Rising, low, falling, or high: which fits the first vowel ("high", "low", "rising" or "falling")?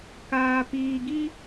high